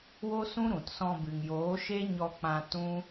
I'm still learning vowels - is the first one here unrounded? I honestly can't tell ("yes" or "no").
no